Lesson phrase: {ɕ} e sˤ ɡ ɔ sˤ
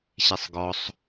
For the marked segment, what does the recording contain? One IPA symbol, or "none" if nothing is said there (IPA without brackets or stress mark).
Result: ɕ